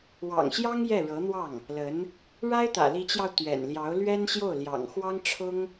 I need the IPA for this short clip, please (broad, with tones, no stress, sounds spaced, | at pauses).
w ɑ̰˨˩ ŋ ɕ j ɑ˥ ŋ j ɛ˥˩ ɻ ɤ˧˥ n̪ w ɑ˥˩ ŋ | l ə˧˥ n | ɻ a˥ ɪ̯ t̪ ä̰˨˩ l i˧˥ t͡ɕ j ɑ˧ ʊ̯ t̪ ɥ ɛ̰˨˩ n l j ɑ˧˥ ʊ̯ l ɥ ɛ˥ n ɕ j o˥˩ ʊ̯ l j ɑ̰˨˩ ŋ x w ɑ˥ ŋ ʈ͡ʂʰ ʊ˥ ŋ